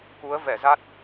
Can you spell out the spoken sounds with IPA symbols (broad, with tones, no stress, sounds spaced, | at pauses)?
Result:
k u˨˦ ə̯ v ɛ˧˩ z a˦˥ t̚